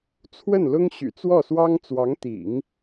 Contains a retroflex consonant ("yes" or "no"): no